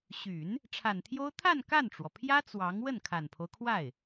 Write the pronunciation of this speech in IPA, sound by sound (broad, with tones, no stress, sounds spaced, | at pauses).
ɕ y˨˩˦ n | ʈ͡ʂʰ a˨˩ n t̪ʰ j o˥ ʊ̯ t̪ʰ a˥˧ n k a˥˩ n ʈ͡ʂ w ɔ˩ pʰ j ä˥ t͡s w ɑ˧˥ ŋ w ə˥˩ n kʰ a˨˩ n pʰ o˦ ʊ̯ kʰ w a˥˩ ɪ̯